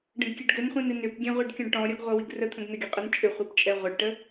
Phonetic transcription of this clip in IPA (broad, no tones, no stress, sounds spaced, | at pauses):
ɖ ə̃ ɡ kʲ ɛ ɖ ɡ ɘ n χʷ ĩ n ɨ n ʏ p ɡʲ ɛ̃ ʁʷ i ɖ kʲ ɔ̃ ɖ ʈ ɔ̃ ɾʲ ɔ ɡ ʁʷ ʌ w i ɡ r ə t̪ʰ ə̃ ɡ n ɘ ɡʲ ə qʼ ɛ n t͡ʃʼ ʏ χʷ ɨ p t͡ʃʼ ɛ ʁʷ ʌ ɖ ʈ ə